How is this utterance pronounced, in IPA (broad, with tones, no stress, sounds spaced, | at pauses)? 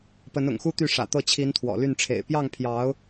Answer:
p ə˧˥ n ʊ̰˨˩ ŋ x u˥ t̪ y˥˩ ʂ ä̰˨˩ t̪ ɤ˥˩ t͡ɕʰ i˧˥ n t̪ʰ w ɔ̰˨˩ l y˥˩ n ʈ͡ʂʰ ḛ˨˩ ɪ̯ p j ɑ˥˩ ŋ pʰ j ɑ˧˥ ʊ̯